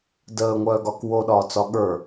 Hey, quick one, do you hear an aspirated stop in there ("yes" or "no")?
no